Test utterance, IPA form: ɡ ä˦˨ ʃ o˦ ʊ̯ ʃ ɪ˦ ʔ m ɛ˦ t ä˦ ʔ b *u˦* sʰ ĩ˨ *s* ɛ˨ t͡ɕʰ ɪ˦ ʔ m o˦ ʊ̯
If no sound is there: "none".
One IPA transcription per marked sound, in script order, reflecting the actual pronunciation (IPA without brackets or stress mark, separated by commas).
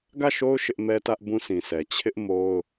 ũ˦, s